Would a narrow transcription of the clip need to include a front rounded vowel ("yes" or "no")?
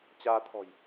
no